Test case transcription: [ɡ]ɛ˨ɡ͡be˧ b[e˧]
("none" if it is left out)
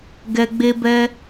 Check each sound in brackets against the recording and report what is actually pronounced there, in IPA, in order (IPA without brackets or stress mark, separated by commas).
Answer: ɡ, ɛ˧